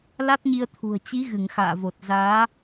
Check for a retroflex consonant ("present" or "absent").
absent